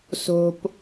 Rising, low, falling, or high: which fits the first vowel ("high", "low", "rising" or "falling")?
high